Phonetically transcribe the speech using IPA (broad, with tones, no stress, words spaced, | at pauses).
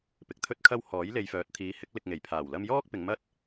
pɪ˨k̚t̪ʰɵ˥t̚kʰɐ˥w hɔː˨˥jle˨jfœː˨˥t̚ t̪ʰiː˨˧hɪ˨˥k̚ lɪ˨k̚ ŋe˨˩j pʰaː˨˩wlɐ˧mjɔː˥k̚ pɪ˨˧ŋmɐ˥t̚